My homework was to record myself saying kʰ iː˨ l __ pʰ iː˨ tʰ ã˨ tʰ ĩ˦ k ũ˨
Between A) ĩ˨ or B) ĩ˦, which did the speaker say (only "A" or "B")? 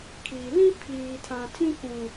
B